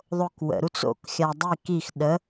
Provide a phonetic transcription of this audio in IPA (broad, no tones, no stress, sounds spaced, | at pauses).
ðˤ o k w ə̰ ɾ u t͡s o̰ k xʲ a dˤ i k i x ɗ ə